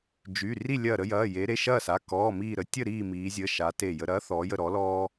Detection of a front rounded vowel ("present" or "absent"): present